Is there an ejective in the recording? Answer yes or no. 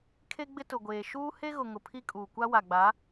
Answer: yes